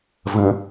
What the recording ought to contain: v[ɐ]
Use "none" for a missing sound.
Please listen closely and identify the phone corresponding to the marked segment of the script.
ɐ̃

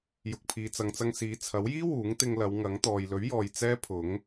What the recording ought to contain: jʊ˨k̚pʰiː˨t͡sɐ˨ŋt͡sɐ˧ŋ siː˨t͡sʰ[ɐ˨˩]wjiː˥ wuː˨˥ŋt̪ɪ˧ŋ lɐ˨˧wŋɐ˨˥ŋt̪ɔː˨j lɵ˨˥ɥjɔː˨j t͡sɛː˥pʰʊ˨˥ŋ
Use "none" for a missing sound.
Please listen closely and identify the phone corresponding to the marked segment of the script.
ɐ˨˥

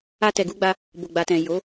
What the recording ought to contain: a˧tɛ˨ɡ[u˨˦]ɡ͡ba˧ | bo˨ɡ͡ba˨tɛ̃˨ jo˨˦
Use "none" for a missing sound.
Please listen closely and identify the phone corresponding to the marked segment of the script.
u˨˦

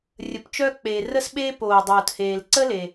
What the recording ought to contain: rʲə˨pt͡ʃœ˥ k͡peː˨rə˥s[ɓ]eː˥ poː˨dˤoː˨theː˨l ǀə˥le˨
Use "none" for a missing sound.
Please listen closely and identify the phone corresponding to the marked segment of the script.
ɓ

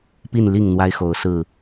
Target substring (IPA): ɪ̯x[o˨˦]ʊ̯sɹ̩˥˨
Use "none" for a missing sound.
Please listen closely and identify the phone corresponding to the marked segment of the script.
o˨˦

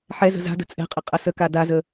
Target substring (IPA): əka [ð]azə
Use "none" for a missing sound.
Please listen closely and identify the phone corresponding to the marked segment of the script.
d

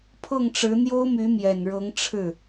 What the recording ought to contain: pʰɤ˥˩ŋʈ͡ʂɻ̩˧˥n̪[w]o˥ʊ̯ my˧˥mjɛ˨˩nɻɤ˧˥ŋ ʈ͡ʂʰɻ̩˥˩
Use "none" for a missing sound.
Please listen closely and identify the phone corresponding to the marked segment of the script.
j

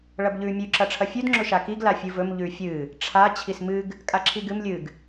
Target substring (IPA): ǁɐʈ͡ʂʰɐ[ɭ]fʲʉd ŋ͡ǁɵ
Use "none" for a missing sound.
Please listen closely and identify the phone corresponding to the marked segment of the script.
none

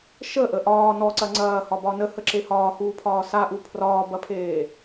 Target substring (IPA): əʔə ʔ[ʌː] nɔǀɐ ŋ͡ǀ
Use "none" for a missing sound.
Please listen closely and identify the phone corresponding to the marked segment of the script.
ɒː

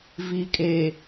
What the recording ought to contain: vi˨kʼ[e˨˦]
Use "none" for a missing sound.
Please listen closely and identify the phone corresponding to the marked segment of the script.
e˨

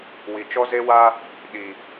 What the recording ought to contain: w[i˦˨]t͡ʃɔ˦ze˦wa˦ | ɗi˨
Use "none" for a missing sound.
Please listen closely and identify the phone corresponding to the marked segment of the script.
i˨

